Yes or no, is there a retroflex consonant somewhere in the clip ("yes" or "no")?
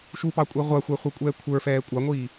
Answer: no